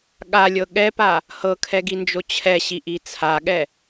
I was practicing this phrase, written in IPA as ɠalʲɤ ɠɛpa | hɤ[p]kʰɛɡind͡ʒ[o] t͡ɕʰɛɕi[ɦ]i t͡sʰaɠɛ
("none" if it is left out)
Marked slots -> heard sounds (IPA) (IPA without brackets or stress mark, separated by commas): none, o, ʔ